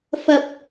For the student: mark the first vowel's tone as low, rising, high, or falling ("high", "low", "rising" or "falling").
low